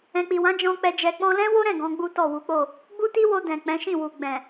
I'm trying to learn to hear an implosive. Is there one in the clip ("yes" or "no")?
no